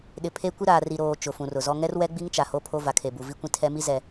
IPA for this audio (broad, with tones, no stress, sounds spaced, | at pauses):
ɗ ɪ˨ pʰ e˦ kʷ i˦ ɾ aː˨ r i˨ ɾ oː˨ t͡ʃ ʊ˨ f ũ˨ r ʊ˨ z ɔ˦ ŋ ɛ˦ r w ɛ˦ ɡ͡b i˦ ŋ t͡ʃ a˨ h o˦ pʰ o˦ v a˨ kʰ e˨ b u˨ v i˦ kʷ ĩ˦ tʰ ɛ˦ m i˦ z ɛ˨